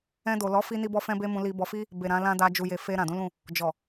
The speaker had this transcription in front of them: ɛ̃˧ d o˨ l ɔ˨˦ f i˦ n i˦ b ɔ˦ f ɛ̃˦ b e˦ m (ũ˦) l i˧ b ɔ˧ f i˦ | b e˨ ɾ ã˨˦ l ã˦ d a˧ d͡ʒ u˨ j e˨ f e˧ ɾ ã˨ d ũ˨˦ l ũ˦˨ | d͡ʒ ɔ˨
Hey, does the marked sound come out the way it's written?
no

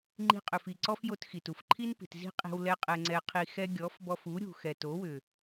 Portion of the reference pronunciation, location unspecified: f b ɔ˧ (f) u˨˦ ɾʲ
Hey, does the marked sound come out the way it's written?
yes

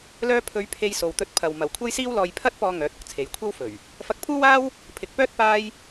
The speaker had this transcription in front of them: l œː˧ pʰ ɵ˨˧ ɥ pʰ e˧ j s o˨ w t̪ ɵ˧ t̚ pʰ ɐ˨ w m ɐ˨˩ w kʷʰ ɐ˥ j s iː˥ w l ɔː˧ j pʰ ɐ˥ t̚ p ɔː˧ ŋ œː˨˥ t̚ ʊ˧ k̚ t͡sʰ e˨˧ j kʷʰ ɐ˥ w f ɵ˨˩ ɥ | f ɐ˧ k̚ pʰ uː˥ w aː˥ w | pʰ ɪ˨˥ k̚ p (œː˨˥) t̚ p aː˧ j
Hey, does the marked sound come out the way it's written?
no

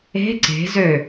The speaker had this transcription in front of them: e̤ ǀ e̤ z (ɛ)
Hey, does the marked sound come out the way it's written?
no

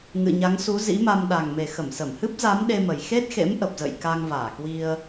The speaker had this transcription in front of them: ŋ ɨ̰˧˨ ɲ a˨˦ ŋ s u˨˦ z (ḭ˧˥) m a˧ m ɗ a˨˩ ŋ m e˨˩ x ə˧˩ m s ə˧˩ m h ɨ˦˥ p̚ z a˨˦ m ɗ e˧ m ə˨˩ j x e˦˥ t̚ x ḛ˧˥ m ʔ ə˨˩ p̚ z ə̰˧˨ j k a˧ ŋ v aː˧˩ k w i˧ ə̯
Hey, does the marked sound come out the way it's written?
yes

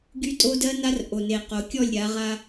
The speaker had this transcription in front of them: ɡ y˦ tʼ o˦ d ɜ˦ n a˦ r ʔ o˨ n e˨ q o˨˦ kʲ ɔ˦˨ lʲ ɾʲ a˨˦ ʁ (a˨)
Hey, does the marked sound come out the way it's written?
no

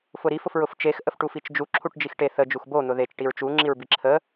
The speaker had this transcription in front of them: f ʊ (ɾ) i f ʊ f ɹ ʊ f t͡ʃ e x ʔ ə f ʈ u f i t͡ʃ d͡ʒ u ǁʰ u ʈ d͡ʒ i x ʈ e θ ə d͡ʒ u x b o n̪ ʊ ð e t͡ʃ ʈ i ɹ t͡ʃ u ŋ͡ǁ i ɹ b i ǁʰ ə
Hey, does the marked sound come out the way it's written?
yes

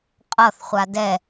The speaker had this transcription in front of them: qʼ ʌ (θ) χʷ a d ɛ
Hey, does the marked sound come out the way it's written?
yes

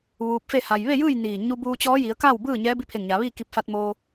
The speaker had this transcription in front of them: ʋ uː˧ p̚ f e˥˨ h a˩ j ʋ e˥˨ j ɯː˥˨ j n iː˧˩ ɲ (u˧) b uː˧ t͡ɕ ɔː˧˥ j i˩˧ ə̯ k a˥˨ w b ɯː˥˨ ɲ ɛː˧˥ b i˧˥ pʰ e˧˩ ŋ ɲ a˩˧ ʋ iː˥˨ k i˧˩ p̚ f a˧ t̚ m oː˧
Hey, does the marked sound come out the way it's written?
yes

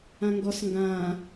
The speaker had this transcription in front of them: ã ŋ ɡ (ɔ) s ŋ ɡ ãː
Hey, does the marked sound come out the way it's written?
yes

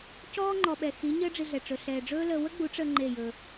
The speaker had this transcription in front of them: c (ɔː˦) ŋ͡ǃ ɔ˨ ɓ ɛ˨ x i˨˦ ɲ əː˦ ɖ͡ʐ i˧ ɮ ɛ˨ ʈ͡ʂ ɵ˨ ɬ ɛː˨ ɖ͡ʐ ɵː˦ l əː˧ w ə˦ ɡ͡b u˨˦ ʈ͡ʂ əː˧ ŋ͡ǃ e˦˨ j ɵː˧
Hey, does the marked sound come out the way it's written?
yes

